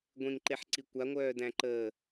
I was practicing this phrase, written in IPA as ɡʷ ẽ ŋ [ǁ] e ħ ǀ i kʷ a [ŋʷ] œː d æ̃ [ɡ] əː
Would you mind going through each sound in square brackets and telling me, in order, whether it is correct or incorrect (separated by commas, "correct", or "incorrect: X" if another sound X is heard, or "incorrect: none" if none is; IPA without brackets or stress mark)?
incorrect: ǃ, correct, incorrect: ǃ